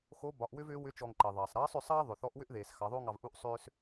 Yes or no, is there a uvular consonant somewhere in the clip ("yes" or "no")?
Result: no